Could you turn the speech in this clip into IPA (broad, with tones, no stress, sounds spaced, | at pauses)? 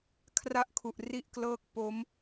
kʰ r a˥˩ ʔ kʰ u˨˩ ʔ r i˥˩ ʔ k l ɤː˥˩ k̚ p o˦˥ m